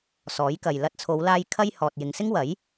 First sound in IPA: s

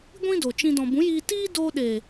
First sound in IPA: ɡʷ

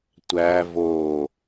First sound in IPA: tʷ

